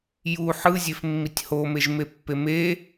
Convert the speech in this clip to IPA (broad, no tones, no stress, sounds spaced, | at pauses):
j u ħ ɯ zʲ e f mː i tʲ h o m e ʒ m e pː e m e